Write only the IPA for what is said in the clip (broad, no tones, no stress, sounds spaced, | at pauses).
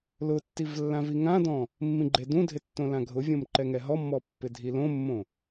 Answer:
l ʊ tː i v lː ã v i ŋ ã d ɔ̃ | mː ĩ ɡ͡ǃ e d ũ dʱ ɪ tː õ l ã ɡʱ ʊ vʲ õ m ǃ ɛ ŋ ɛ ɦ ɔ mː ɔ pː ɪ dʱ i l õ mː õ